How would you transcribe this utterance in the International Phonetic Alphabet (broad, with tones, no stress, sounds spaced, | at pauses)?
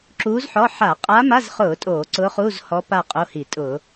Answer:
ǁ uː˧˥ z ħ ɔ˧˥˧ ħ a˧˩˧ qʼ a˧˥ m a˧˥˧ z χ ʊː˧˩˧ tʼ oː˧˩˧ ǀ ʊː˧˥ χ uː˧˥˧ z h ɔ˧˥ p a˦˨ qʼ o˧˥˧ h i˧˩˧ tʼ ʊː˧˩˧